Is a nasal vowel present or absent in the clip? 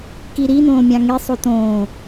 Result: present